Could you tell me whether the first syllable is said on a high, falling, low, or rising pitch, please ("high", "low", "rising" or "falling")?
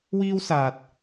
high